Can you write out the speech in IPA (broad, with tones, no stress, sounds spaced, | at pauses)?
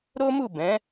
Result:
ɾ o˦ m u˦˨ b ɛ̃˨˦